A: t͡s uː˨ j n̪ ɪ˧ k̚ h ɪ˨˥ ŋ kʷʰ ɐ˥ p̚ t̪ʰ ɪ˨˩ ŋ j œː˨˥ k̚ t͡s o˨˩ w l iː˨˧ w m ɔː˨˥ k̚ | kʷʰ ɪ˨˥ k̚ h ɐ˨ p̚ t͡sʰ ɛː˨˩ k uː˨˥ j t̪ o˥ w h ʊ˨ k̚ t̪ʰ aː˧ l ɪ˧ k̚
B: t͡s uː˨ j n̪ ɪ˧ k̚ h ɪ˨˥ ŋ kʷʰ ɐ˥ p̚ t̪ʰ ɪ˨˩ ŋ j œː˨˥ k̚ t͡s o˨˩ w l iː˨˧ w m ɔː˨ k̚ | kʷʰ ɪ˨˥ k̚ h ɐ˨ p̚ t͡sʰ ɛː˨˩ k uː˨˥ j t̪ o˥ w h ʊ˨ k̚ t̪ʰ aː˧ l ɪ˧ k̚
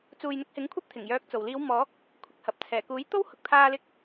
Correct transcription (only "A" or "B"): A